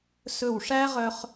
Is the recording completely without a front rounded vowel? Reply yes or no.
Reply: no